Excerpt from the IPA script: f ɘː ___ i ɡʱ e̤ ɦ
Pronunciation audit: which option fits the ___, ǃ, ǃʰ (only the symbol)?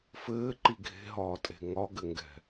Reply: ǃ